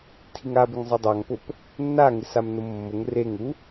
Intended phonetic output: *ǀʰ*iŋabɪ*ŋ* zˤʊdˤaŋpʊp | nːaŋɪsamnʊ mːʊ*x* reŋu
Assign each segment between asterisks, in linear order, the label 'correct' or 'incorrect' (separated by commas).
incorrect, correct, incorrect